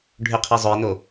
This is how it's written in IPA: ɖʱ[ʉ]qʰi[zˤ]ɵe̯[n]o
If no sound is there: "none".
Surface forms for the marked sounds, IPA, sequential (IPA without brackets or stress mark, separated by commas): ʉ, zˤ, n